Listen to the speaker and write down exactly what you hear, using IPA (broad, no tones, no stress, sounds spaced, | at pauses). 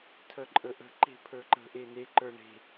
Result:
tʰ œ ǃʼ ə ʔ ə̤ ǃ e̤ pʰ ə˞ ǃ ə̤ ʔ e n e ǃ ə˞ ɳ e̤